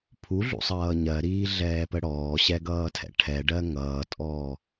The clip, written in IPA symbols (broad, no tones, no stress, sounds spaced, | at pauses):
pʰ u ɮ ṵ sˤ ʌː ɲ ɜ ɾ iː ɮ ɛː p ə ɽ ɔː ɕ ɛ ɡ ʌː tʰ ɛ̰ ʈʰ ɛ ɖ ɜ ŋ ʌː tʼ ɔː